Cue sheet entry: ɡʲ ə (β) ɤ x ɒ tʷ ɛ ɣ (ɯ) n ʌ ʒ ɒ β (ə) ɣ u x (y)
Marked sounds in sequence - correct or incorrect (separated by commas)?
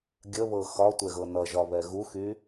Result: correct, incorrect, incorrect, correct